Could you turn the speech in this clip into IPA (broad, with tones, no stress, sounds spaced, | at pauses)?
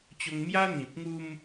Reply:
t͡ɕ o˧ ŋ m j a˦ n̪ ĩ˨ p̚ ŋ u˧ m